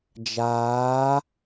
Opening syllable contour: rising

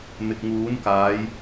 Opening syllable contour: low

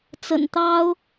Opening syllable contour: low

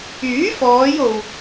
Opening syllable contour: rising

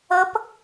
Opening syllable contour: rising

